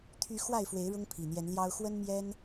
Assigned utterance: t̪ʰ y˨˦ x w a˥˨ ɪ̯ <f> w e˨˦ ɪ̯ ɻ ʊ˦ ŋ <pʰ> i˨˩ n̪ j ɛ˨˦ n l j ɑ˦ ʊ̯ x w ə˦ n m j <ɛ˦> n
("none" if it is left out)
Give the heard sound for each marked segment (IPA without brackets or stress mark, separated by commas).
f, pʰ, ɛ˦